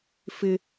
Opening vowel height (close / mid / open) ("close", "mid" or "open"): close